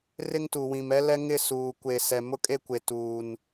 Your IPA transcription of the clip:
rɪ˦ŋtu˨wĩ˨m ɛ˦lɛ˦ŋɪ˦˨ suː˨kʷe˨ sɛ˨mʊ˦kʼe˦kʷe˨ tuː˨n

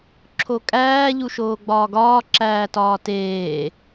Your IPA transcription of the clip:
ǁʰokʼæː ʎuʃoːɡ͡bɒːɡɒː ǁæːtɒːteː

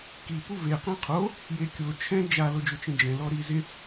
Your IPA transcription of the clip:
ki puve qẽqʰo | jekʲo t͡ʃʰɛ̃ d͡ʒa lod͡ʒʊt͡ʃẽd͡ʒɛ̃ lɔɾizɪ

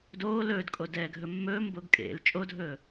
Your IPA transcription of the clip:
doː lɵːdkʼodɛːɡʱɵ mːɵːmboɡ kʼḛl t͡ʃʼodʱɵː

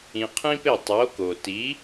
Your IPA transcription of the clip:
ĩ˧qʰĩ˥pe˥˩ tˤo˩˥ko˩ti˩˥

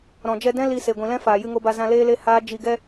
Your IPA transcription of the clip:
ɾɔ̃˨d͡ʒɛ˧dɛ̃˦ li˧ se˨ ɡʷĩ˨lɛ̃˦ faː˨jɨ˧ŋo˧ba˧ zã˧leː˦le˦ haː˦ d͡ʒi˧ɡɛ˦

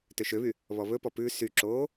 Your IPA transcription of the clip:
tøʃøβy | βɔβɵpɔ pʉ syǁoː

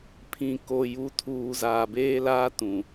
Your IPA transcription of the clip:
pʰĩ˨ko˨ ju˨tʰuː˨ zaː˨beː˦laː˦tũ˨

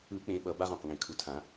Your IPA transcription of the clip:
ɯ˨˩˦ k͡pẽ˨˦ɓʌ˨˩˦ba˧˥˧ʁ õ˨˩qŋẽ˨˩kʰu˨˩˦tʰã˨˩˦

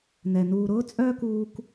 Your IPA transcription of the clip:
nɛ˨ nuː˨ɾʊː˦t͡sʼœː˦k uː˦k

